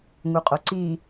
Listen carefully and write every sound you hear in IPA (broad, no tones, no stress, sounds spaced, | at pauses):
ŋ u qʼ o ǀ i